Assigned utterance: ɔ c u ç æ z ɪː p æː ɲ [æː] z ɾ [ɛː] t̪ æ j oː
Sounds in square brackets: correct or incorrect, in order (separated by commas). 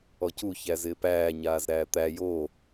incorrect, incorrect